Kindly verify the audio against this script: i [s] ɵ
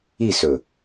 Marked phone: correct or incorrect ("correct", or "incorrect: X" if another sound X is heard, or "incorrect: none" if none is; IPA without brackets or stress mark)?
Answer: correct